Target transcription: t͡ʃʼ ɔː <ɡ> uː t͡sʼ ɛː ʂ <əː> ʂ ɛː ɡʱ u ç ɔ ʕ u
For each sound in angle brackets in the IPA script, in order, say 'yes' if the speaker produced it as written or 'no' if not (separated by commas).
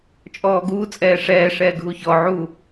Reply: yes, no